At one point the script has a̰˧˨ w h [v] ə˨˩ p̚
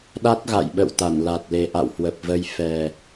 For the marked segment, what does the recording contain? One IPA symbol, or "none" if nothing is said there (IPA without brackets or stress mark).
w